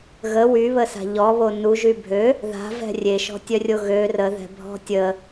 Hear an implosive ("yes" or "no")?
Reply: no